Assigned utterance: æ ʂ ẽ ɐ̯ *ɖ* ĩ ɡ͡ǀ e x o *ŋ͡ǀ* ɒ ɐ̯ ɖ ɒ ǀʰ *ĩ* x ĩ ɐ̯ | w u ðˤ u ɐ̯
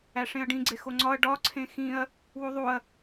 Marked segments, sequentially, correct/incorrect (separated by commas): correct, correct, incorrect